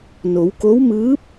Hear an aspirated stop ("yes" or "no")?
no